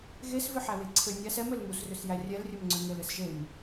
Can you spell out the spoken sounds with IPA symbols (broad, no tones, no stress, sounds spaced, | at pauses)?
ɣ e s v ʏ ħ æ w e ǀʰ ɘ nʲ æ s ɛ m ɘ l m u s r ʏ s j æ rʲ ɛ l rʲ ɘ m ŋ͡ǀ ʏ ŋ ɘ l ɘ s ʒ e m